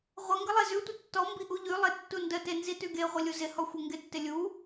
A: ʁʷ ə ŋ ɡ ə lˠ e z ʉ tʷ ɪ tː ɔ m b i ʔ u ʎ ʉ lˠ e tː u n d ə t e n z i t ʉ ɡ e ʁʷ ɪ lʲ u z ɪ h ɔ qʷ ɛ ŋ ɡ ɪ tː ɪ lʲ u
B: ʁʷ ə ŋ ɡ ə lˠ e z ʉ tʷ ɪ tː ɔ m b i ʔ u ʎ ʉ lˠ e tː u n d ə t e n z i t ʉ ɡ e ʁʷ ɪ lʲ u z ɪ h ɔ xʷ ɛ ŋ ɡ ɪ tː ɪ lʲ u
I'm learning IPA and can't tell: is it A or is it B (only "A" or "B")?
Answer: B